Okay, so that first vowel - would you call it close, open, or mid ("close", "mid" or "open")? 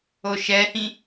mid